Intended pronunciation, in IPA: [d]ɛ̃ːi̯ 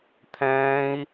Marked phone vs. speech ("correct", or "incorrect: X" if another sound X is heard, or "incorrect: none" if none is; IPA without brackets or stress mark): incorrect: t̪ʰ